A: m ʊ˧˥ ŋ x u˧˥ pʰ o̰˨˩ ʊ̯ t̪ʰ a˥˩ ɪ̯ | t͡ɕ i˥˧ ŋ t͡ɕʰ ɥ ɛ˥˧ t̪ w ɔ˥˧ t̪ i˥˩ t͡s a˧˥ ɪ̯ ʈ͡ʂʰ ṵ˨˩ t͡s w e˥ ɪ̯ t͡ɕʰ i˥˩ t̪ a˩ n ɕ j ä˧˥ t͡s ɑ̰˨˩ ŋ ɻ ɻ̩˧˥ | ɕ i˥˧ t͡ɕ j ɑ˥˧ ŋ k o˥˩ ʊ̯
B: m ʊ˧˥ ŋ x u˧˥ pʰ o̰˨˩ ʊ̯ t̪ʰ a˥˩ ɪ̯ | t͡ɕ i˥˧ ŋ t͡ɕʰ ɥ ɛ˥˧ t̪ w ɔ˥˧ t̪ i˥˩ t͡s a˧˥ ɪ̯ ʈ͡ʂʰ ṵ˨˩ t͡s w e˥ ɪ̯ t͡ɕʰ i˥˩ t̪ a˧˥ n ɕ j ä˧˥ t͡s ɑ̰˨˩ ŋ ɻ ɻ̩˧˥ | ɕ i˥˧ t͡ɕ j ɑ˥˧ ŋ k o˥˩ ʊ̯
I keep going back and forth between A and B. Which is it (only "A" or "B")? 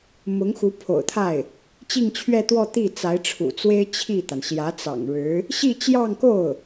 A